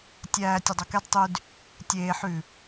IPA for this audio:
tʲ æː tʲ œ dˤ o k ɛ d tˤ y d | tʲ eː ħ ʉ

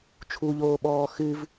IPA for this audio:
t͡ʃʰ u ʎ oː ɓ ɔː x ɨ v

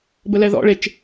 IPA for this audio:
b ə l ɛ ð ɔ̰ ɭ e t͡ʃ

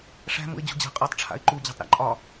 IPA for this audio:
ʂ æ̤ m ṵ ɪ̯ d͡ʑ ṳ d͡ʑ æ̤ qʼ ɔ tˤ ʈ͡ʂʰ a̰ ɪ̯ ǃ u d͡ʑ æ̤ tˤ ɾ æ̰ ǃʼ ɒ

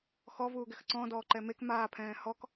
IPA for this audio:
x ɔ v uː ɡ ɛ x ǀ ɔ̃ d ɔː ǃ ɛ m e k m aː pʰ ɛ̃ː h ɔ k

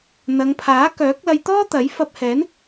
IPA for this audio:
n̪ ɐ˨˧ ŋ pʰ aː˨˥ k œː˨˥ k̚ l ɐ˧ j t̪ ɔː˥ t̪ ɐ˨˥ j f ɐ˧ p̚ h ɛː˨˥ n

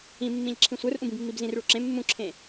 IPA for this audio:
ĩ mː ĩ ʎ ǁʰ ĩ sʷ ə˞ r ʔ ũ b ĩ b mː i b z ĩ r ɭ u ǁ ẽ mː ũ ǁʰ ẽ

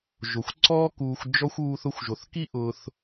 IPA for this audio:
ʒ o˩ xʷ ǀ ɔː˦ k uː˨ xʷ d͡ʒ ɔ˥ xʷ uː˦ θ ʊ˦ xʷ ʒ o˩ θ k i˥ ʔ ʊ˨ θ

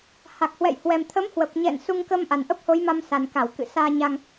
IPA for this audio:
h a˨˩ k̚ h w ɛ̰˧˨ j h w ɛ˨˩ m t̪ʰ ə˨˦ m h w ə˨˩ p̚ ɲ ɛ̰˧˨ n s u˧ ŋ k ə˧ m ʔ a˨˩ n ʔ ə˦˥ p̚ h o˨˦ j m a˧ m s a˨˩ n k a˧˩ w k ɨ̰˧˨ s aː˧ ɲ a˧ ŋ

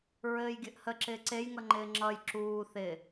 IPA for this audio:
ɹ ɘː j ɡʲ ɘ ʔ h ə ǁ ɪː ǀ e j ŋ ʌ ŋ͡ǃ ɪː ŋ͡ǁ ʌ j ǁ uː θ ɪ

